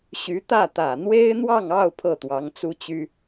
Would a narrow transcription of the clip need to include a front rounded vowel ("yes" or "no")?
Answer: yes